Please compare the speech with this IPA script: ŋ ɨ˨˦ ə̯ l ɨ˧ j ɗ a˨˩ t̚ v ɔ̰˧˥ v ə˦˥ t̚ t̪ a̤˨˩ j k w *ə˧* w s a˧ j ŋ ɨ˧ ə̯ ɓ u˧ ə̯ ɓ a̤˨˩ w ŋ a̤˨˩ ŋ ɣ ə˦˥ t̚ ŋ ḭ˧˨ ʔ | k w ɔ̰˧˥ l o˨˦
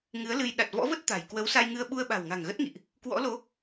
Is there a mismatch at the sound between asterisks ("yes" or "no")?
yes